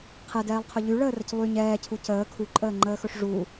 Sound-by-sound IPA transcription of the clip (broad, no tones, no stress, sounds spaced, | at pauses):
qʰ ɛ d ɛː lˠ qʰ ɵ ʎ y ɭ əː r ə c lˠ y ɲ ɛː cʰ u c əː kʰ u ǃʼ əː ŋ͡ǃ əː x ɵ ʂ ʐ u